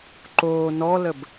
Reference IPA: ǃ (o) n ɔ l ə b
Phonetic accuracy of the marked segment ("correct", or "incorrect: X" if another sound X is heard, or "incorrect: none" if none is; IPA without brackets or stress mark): incorrect: oː